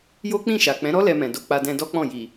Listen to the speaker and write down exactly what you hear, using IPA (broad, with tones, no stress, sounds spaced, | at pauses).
j o˦ k͡p ĩ˦˨ ʃ a˨ k͡p ɛ̃˨˦ ɾ ɔ˦ l ɛ˧ m ɛ̃˨ d o˧ k͡p a˧ d ɛ̃˧ d ɔ˦ k͡p ɔ̃˦˨ j i˨